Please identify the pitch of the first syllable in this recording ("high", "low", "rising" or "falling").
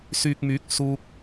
low